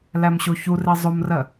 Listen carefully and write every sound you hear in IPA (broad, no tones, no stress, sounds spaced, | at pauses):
l æ m ɕ o ç u r e zˤ o m r ɜ